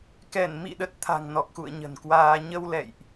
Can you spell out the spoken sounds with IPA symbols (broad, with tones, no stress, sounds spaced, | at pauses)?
k ɛ˧˩ n m ḭ˧˨ ɗ ə˨˩ t̚ t̪ʰ a̤˨˩ ŋ n ɔ˨˩ k̚ x ṵ˧˨ ə̯ ɲ ə̤˨˩ n k w aː˧ ɲ ə˧ w l ɛ̰˧˨ j ʔ